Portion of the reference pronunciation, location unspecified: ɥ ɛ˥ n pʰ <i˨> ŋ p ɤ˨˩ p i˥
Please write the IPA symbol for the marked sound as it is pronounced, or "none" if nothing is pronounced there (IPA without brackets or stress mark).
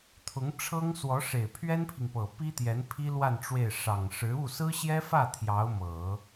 i˨